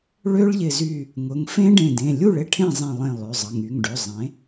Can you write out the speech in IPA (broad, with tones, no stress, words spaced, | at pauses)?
ɭø˦˥ɭʎɪ˧˩zy˧˩ | ŋʊ˩˧˩ŋfẽ˦˥ɖẽ˧˩dẽ˩˧˩ lʲu˥˩ɭɪ˦˥ ʈʰẽ˥˩zˤẽ˧˩lˠẽ˧˩ lˠø˩˧˩zˤə˩˧˩ŋy˩˧˩ŋɖø˩˧˩ zˤẽ˩˥